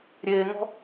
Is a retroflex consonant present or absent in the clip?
absent